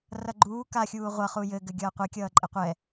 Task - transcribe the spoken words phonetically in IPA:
r ʌ ɡ͡ǃ uː k a xʲ uː ʁʷ ʌ χ u j ɘ ɡ ɘ ɡʲ ʌː qʷ ɛ kʲ ʌː ǃʼ ɘ qʷ ɛ

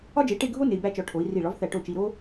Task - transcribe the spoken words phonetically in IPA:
ɒ˥ d͡ʒ e˨˥ ʈ e˥˧ ɡʱ o˥ n e˧ i̯ b æ˥˧ t͡ʃ ɒ˧ ʈʰ o˨˥ i̯ r i˧˩ ɭ ɒ˨˥ v θ æ˧˩ ʈ o˥˩ t͡ʃ i˧ ɾ o˥

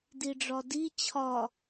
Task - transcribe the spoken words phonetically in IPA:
d i ɖ͡ʐ ɒ d i t͡ɕʰ ɒ

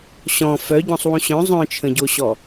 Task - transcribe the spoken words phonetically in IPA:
ɕ ɔ̃ f œ ɟ ɔ̃ sˤ w ũ ɕ œ̃ zˤ œ̃ t͡ʃʰ ə̃ ɟ o ɕ ɔ

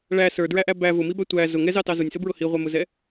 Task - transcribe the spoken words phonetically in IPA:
ɭ æ s ə˞ d ɹ æ ʔ æ b æ v ʊ m i b æ tʷ æ z ʊ ŋ ɛ z ɑ t ɑ z ʊ nʲ s ʊ b ɹ ʊ h i ʁʷ ɛ m ʊ z ɛ

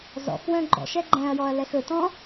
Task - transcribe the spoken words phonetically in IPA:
z ɔ̰ x w œ̃ ɡ͡ǃ ɔ̰ ʃ ɛ ɡ͡ǃ ɛ̃ ɐ̯ j ɔ ɐ̯ l ɛ x ɵ t ɔ̃

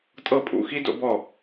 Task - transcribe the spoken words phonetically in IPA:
tʼ ɤ˥˩ pʼ ṵ˧˩ x i˥ d o̰˥ b ɔ˥˩

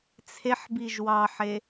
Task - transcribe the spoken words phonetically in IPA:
t͡sʰ e ħ b i ʒ w ɑ ħ e

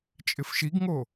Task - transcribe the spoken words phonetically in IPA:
t͡ʃʼ ɪ f ʃ i ɡ ŋ o

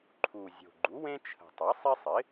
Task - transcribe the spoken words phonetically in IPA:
ǃʰ u˨˩ zʲ o̤˨˩ ɡ͡ǃ u˩˥ w ẽ˦ t͡ʃʰ ə̤˨˩ tˤ ɛ˩˥ sˤ i˦ sˤ ɪ˩˥

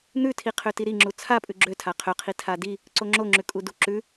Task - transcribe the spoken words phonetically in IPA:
n̪ ʉ tʰ i qʰ ø t i ɾ i ŋ͡ǁ u t͡sʰ a pʼ ʉ ɡ͡ǁ ø tʰ a qʰ ø qʰ i tʰ a d i | ǀ o ŋ͡ǁ o ŋ͡ǁ ʉ kʼ u d u ǁ ʉ

